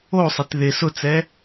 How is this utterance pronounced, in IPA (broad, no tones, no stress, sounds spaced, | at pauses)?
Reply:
o sˤ e t ð ɪ s ʊ t͡s ɛ